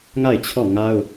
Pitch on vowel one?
falling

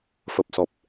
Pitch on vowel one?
low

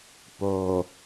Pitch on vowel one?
low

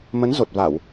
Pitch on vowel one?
rising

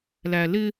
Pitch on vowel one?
low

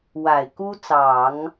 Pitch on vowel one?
low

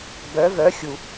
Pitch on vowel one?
rising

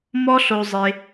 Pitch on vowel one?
high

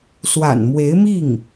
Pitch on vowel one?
low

